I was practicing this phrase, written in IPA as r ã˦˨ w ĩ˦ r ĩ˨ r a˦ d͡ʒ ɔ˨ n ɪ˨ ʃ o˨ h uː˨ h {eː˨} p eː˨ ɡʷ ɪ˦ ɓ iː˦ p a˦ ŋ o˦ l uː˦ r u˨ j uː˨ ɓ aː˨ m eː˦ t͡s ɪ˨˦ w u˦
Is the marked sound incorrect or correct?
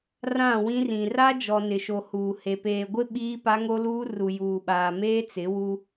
incorrect